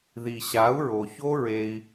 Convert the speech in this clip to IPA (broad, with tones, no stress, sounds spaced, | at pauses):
ð i˨ ɕ a˨˦ u̯ ɹ o˨ ç o˦ ɹ e˧ i̯